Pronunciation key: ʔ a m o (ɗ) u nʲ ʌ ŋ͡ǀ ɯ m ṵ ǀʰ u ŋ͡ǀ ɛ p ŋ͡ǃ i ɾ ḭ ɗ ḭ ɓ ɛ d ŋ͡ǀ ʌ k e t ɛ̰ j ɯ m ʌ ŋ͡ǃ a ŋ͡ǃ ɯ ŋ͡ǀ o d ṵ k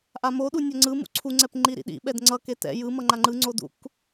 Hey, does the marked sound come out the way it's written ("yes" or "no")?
yes